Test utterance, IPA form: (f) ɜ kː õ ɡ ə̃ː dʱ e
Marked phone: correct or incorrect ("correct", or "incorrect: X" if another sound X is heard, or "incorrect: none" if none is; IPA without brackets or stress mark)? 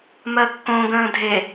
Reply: incorrect: m